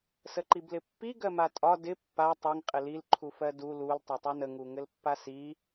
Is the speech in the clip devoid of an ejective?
no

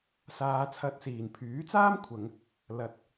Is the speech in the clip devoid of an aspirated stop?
no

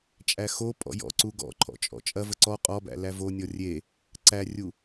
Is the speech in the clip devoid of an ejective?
no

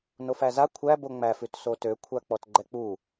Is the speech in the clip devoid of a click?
no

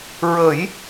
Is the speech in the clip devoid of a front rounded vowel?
yes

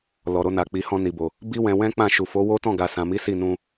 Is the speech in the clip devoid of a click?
yes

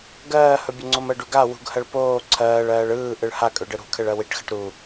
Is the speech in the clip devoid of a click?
no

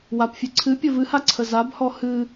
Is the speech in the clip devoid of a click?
no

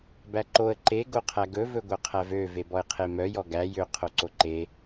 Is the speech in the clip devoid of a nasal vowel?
yes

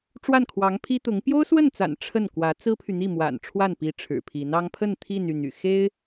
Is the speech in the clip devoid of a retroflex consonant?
no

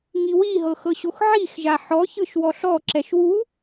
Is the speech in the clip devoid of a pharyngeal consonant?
no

